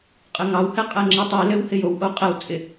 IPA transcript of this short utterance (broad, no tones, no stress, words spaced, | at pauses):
qʼɘŋɑwhɛ qʼɛŋ͡ǁitˤilɘw hɪjowʔo qʼɛw t͡sʼɪ